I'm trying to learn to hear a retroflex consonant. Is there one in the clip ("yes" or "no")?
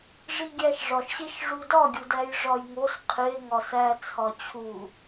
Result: yes